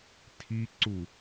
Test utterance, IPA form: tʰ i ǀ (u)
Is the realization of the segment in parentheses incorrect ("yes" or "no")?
no